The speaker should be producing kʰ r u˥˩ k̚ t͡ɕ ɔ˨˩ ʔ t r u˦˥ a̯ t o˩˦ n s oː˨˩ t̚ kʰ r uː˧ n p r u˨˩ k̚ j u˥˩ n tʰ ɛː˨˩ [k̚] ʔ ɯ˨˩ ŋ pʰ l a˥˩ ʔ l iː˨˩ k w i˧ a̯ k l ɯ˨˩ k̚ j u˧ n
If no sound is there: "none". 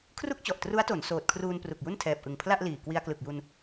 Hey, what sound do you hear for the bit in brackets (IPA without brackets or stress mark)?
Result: p̚